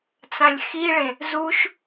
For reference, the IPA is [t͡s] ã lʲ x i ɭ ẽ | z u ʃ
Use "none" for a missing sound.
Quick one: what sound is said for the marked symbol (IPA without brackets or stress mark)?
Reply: t͡s